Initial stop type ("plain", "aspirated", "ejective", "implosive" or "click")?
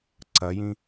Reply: click